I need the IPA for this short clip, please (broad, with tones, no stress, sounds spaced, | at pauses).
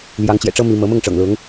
l j ɑ˧˥ ŋ t͡ɕ j ɛ̰˨˩ ʈ͡ʂ ɤ˥ m i˥ m ɤ˧˥ m ʊ˥˩ ŋ ʈ͡ʂ ɤ̰˨˩ ŋ l ʊ˧˥ ŋ